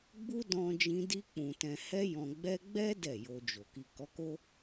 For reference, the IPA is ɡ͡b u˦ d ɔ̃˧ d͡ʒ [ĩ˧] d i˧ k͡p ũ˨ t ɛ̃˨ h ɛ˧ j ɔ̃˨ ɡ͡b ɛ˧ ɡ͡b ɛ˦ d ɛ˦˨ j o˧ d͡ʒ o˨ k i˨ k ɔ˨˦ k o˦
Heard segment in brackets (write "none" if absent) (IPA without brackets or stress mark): ĩ˧